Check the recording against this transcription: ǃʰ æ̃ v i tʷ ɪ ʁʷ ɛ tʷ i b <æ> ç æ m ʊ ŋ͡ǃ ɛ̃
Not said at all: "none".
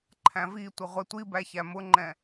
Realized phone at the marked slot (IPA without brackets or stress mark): æ